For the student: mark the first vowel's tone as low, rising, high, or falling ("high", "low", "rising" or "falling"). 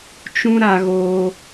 high